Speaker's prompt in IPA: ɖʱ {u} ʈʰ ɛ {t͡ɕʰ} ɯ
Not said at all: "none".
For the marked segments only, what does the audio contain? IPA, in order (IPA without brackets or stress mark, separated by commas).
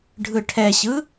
ɯ, ɕ